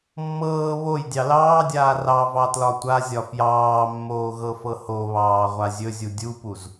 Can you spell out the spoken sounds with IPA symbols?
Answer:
mː ɤː β o j dʲ ɑ l ɑː dʲ aː r ɑ v ɑ t l ɒ tʷ a zʲ ɒ f j ɑː mː oː ɣ ɤ f ɤ h o β ɑː ʁʷ a zʲ ɵ zʲ u dʲ u p u z

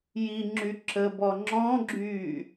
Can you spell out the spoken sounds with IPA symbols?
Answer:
j i ŋ͡ǁ y ǁ ə b ɔ ŋ͡ǁ ɔ̃ ɡ͡ǁ yː

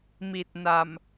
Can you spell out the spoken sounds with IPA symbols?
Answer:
m i˨˩ t̚ n a˨˩ m

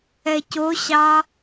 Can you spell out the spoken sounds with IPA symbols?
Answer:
ɛ c o ɕ ɑ

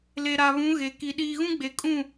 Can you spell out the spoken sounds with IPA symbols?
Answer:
l e˨ ɾ a˨ β ũ˨˦ ɣ e˨ k i˨ ɗ iː˨ ɣ ũ˦ ɡ͡b e˨ kʼ ũ˦˨

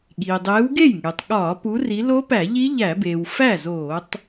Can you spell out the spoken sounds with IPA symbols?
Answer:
ɠ iː˩ dˤ eː˨˦ w ɡ e˥˩ j ŋ e˩ tˤ ɠ ɒː˧˩˧ p u˨˦ r i˨˦ l o˦˥ p æ˧˩˧ ʎ i˦˥ ʎ æ˧˩˧ b eː˩ w f æ˥˩ z oː˧˩˧ tˤ

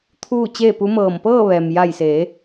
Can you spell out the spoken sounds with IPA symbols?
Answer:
t̪ʰ uː˥˨ t͡ɕ eː˥˨ p u˧˥ m ɤː˧˩ m p ɤː˥˨ ʋ ɛː˩ m j a˧˩ j s eː˩˧

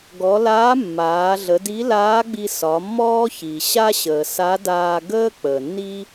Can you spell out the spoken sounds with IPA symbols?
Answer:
ɡ ɔ˩˧ l aː˧˥ mː aː˩˧ ɮ ə˩˧ d i˧˥ l aː˧˥ ɡ͡b i˧ s ɒ˩˧ mː ɔː˥ ç i˩ ɕ a˥ ɕ əː˩ s a˧˥ d aː˧ ɡ əː˥ k͡p əː˩ nː i˥

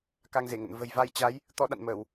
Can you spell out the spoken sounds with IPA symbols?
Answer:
k a˧ ŋ z e˧˩ ŋ ə̰˧˨ n v ə̤˨˩ j v a˧ j t͡ɕ a˨˦ j | t̪ ɔ˨˦ ɗ a̰˧˨ n m əː˧˩˨ w

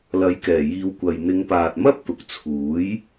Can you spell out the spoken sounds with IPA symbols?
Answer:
l ɐ˨˥ j k ɛː˨˩ j iː˨˧ w kʷ ɐ˨ j n̪ ɪ˨˧ ŋ p aː˨ t̚ m ɐ˥ p̚ t̪ ʊ˨ k̚ t͡sʰ uː˨˥ j

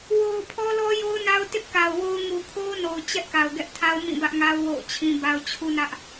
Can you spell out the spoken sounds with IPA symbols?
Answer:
w o˨ ʊ̯ pʰ ɔ˦ l ɔ˦ j o˦ ʊ̯ n a˦ ʊ̯ t ɪ˦ ʔ k a˨ ʊ̯ w o˦ ʊ̯ ŋ u˨ kʰ o˦ ʊ̯ n o˨ ʊ̯ t͡ɕ ɛ˦ ʔ k a˨ ʊ̯ ɡ ɛ˦ ʔ tʰ a˦ ʊ̯ m ĩ˦˨ b ä˦ ʔ ŋ a˦ ʊ̯ w o̰˦˨ ʊ̯ t͡ɕʰ ĩ˦ b a˦ ʊ̯ t͡ɕʰ u˦ n ä˦ ʔ

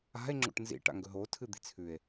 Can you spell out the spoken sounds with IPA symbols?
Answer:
a̤ e̯ ŋ͡ǁ o̰ ʈ n z ḭ ʈ a̰ ŋ ɡ ɵ ɦ o tʰ ɨ d̪ i̤ t͡sʰ ʉ e̯

